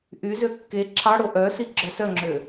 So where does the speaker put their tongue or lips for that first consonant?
throat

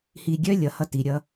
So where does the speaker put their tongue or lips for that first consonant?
throat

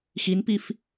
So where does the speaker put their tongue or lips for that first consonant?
velum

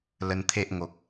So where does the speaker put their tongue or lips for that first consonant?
tongue tip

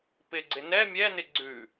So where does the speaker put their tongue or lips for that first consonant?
lips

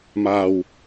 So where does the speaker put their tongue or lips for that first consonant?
lips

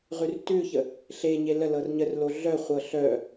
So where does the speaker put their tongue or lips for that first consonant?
uvula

